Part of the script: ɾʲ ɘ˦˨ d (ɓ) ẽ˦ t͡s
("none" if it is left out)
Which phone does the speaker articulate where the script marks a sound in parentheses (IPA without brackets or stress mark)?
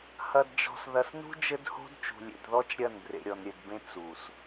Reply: b